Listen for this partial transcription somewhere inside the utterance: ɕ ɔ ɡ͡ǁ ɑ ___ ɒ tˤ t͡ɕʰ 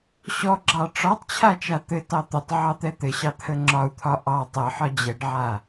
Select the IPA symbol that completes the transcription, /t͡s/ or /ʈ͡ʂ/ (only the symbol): ʈ͡ʂ